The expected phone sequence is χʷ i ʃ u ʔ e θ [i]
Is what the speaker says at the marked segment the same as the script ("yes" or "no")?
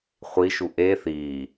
no